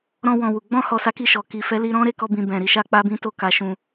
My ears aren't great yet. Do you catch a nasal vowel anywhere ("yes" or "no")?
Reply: yes